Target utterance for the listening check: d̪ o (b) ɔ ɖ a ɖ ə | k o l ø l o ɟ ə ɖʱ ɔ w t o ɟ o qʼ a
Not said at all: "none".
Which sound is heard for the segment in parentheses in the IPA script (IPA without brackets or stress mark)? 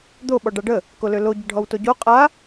ɓ